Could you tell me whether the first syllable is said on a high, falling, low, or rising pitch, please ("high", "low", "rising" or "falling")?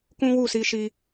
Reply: high